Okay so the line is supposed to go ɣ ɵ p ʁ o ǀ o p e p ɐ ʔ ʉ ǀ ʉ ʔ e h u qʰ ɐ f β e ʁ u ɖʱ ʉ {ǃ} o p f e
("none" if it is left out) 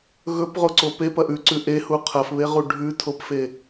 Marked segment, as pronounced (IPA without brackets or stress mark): tʰ